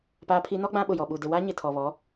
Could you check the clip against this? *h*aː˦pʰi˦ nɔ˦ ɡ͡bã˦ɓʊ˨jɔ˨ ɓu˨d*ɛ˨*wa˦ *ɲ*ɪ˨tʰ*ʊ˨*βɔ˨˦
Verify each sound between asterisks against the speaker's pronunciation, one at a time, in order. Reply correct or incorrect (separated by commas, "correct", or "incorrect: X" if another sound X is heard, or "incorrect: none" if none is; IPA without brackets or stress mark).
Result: incorrect: p, incorrect: ɪ˨, correct, incorrect: ɔ˨